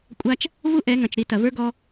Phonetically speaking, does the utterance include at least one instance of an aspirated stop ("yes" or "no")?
no